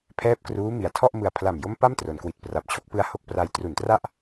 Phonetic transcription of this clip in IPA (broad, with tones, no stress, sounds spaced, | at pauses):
pʰ ɛː˦˥ p̚ k r uː˦˥ m i˨˩ a̯ tʰ ɔ˥˩ ʔ m ɯ˨˩ a̯ pʰ l a˨˩ m j o˦˥ m p a˥˩ m t r o˩˦ n k w i˨˩ t̚ p r a˨˩ p̚ t͡ɕʰ o˦˥ k̚ p ɯ˧ a̯ h o˥˩ k̚ p r a˧ j t r u˨˩ n t r a˥˩ ʔ